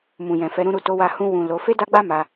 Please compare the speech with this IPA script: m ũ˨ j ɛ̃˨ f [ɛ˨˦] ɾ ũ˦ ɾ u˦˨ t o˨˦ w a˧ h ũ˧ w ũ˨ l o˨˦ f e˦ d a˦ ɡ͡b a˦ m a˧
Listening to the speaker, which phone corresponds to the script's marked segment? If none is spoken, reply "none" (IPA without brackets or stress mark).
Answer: ɛ˨˦